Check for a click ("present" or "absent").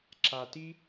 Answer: present